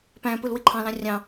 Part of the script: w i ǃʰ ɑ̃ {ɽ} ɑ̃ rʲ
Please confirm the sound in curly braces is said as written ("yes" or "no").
no